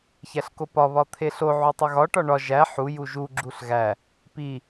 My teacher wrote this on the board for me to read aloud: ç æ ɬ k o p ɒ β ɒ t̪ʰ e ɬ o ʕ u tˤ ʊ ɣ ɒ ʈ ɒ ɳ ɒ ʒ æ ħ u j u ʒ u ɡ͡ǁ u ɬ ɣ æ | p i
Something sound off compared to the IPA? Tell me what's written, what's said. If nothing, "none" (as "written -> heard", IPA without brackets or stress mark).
ʊ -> u